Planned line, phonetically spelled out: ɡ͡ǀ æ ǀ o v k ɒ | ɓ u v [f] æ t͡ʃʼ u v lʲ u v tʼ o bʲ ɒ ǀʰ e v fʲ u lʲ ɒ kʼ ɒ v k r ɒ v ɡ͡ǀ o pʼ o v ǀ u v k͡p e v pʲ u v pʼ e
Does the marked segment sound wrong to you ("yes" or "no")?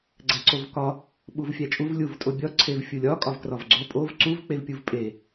yes